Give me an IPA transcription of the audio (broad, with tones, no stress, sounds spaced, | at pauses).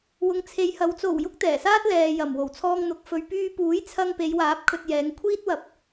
w ʊ˨ ŋ t͡sʰ e˨˧ j h ɐ˨˧ w t͡s o˨˩ w j ʊ˧ k̚ t̪ ɛː˨˩ s aː˥ t̚ l ɛː˨ j ɐ˨˩ m w o˨˩ w t͡sʰ ɔː˧ ŋ n̪ ʊ˨˥ k̚ f ɵ˨ ɥ p yː˧ p uː˨˥ j t͡sʰ ɐ˧ ŋ p e˨˧ j w aː˨˥ p̚ kʰ ɵ˨ t̚ j ɛː˨˧ ŋ kʷʰ iː˥ t̚ w ɐ˨˥ p̚